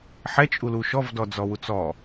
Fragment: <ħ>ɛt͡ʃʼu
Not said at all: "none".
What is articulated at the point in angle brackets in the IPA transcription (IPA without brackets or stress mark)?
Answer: ħ